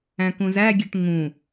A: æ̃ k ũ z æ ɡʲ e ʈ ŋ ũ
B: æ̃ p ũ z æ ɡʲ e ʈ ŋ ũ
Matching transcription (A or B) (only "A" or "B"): A